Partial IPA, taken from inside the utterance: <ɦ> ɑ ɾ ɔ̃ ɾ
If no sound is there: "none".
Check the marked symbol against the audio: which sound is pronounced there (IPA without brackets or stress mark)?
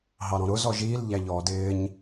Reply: ɦ